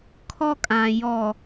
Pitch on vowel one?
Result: high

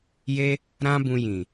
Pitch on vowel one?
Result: high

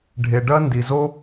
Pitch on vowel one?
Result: low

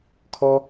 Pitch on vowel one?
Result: high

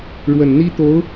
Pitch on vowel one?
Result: low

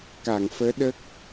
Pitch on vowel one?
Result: low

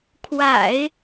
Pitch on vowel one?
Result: low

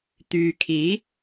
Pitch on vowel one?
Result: low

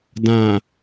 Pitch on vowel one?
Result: low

